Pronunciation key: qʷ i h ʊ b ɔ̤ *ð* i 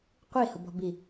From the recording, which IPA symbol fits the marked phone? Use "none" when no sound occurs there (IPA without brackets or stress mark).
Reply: b